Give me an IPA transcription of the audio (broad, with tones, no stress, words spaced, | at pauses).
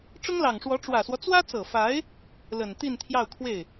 ʈ͡ʂʊ˥ŋlɑ˨˩ŋʂwɔ˧˥ ʈ͡ʂwä˨˩swɔ˦ t͡swä˥t͡sɤ˨˩fa˧˥ɪ̯ | lə˨˩n t̪i˥˧nt̪ʰjɑ˥˧ʊ̯kʰwe˥˩ɪ̯